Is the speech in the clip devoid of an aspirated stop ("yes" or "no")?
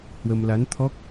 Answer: no